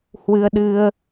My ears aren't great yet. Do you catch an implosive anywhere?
yes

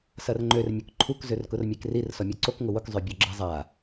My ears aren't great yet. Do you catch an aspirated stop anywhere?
yes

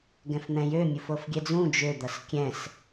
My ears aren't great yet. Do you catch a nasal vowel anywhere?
yes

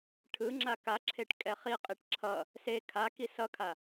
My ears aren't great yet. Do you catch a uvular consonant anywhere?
yes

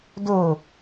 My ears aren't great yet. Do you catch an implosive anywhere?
no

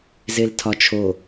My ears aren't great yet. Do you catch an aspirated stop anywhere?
yes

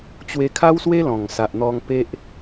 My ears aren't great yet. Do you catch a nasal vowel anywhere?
yes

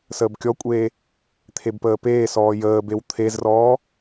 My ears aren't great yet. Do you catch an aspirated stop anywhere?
yes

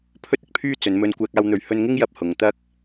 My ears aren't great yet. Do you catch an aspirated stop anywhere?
yes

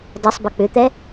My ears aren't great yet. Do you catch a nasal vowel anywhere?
no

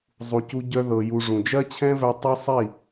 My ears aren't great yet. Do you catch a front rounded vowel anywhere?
yes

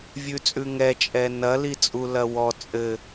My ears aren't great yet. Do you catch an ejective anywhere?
yes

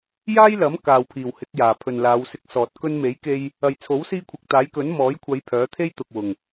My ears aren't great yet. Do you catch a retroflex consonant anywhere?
no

